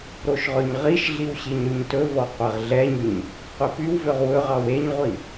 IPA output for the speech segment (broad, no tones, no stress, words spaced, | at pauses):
ɾoʃʁɵɲʁiʃɮiw ɕiɲɾyɲtɵvɔ qʷɛʁɮɛɲyɲ | qʷepywvøʁ wɵʁɑw eɲʁʷi